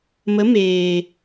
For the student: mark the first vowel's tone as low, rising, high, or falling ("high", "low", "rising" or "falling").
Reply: rising